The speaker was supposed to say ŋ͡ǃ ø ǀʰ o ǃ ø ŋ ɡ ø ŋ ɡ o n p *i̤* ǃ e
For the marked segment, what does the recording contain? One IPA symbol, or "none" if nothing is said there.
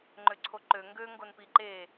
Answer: i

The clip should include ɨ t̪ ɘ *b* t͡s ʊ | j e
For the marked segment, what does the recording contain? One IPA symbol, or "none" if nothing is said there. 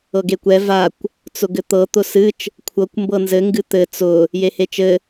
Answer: none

